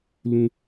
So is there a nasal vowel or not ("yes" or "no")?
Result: yes